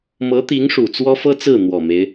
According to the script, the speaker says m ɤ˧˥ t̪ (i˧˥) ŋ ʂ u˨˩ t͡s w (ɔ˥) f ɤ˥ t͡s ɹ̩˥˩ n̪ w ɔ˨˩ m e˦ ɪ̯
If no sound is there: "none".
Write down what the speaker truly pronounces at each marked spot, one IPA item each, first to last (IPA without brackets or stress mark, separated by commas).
i˧˥, ɔ˥